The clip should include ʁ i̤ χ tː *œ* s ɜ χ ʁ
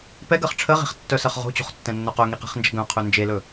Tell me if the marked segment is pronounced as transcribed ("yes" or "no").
yes